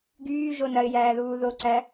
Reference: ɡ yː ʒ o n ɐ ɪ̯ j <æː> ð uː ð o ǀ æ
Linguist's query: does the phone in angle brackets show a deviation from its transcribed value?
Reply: no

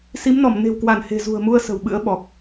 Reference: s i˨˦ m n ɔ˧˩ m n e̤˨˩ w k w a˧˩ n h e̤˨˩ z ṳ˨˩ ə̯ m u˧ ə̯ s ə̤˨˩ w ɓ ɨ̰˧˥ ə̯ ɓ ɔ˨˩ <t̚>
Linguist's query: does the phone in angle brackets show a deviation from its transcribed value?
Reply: yes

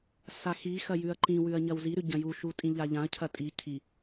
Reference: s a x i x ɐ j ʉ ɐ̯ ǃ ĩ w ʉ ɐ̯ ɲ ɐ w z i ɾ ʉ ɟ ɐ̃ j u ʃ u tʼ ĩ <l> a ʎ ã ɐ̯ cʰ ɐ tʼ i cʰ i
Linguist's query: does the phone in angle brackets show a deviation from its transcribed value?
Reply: yes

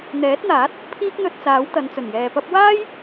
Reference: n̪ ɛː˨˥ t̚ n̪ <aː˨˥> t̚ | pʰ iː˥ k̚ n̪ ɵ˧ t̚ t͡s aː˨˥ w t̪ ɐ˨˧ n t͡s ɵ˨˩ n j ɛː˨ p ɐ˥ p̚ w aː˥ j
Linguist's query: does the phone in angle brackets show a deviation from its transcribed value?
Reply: no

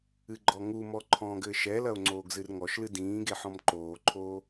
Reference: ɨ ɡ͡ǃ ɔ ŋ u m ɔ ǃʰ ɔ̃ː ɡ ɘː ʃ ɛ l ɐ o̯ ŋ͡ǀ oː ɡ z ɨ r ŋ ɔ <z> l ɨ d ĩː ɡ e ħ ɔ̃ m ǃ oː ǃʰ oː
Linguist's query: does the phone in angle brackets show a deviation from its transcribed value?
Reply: yes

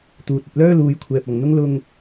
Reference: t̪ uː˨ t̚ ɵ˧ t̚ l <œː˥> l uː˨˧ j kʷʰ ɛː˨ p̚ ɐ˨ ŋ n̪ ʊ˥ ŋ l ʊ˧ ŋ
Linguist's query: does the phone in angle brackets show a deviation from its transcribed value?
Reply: no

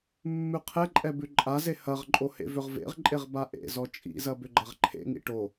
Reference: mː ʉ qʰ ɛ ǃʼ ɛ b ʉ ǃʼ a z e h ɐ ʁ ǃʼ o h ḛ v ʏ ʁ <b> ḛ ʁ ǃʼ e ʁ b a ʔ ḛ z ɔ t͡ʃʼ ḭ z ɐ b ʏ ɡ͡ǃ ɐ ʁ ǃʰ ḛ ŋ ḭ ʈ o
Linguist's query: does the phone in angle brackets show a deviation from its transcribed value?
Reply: yes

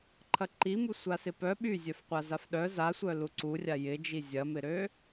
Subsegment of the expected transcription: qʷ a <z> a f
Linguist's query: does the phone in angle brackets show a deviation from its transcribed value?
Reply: no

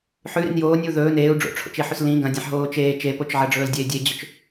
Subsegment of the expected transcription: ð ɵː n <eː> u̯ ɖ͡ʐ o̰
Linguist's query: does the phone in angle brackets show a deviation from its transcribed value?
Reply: no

